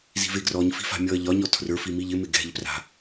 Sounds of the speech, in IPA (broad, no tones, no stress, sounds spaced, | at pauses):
z i̤ v e ɡ r ɔ ɲ f i̤ f a̤ mʲ ɔ ɐ̯ ʎ ɒ ɲ ɔ tʰ r ə˞ f i m i ʎ ɪ m ɪ ɡ ɛ̤ ʎ p r a̤